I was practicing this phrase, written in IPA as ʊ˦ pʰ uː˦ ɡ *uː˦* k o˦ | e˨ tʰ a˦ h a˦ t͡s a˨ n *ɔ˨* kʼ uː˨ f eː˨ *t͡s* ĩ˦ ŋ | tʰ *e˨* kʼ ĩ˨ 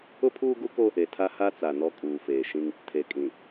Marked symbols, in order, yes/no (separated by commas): no, no, no, yes